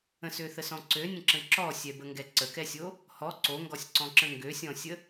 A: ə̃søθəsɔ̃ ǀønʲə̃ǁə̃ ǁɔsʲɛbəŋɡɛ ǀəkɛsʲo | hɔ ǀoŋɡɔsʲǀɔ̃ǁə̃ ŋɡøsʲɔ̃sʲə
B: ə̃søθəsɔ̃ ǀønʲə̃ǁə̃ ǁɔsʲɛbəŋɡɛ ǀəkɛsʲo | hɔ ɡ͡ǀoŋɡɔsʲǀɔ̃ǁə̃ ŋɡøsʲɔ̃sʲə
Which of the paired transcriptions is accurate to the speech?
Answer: A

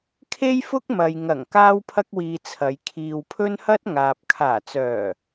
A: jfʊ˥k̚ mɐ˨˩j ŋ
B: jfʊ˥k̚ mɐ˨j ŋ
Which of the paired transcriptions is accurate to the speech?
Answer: B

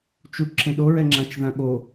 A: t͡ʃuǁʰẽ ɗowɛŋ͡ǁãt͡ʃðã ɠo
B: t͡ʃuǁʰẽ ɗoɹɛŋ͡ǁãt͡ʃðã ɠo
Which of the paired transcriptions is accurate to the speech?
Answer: B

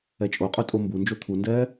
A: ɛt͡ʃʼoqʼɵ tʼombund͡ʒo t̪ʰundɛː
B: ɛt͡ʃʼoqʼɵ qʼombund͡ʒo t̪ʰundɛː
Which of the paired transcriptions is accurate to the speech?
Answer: A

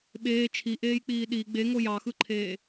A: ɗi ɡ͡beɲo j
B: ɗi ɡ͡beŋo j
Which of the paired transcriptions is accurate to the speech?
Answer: B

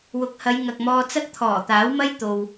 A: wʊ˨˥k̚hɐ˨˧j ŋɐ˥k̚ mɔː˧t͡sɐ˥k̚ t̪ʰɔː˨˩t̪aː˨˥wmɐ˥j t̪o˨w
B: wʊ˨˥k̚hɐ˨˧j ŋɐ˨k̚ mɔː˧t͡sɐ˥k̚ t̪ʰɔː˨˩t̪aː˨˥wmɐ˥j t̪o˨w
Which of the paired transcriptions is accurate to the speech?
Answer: B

